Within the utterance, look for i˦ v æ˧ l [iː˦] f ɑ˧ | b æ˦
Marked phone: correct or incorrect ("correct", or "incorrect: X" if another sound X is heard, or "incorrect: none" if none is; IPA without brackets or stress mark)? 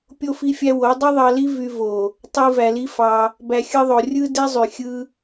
incorrect: i˦